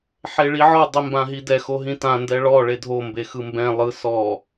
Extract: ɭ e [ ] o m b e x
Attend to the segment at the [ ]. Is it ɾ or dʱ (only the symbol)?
dʱ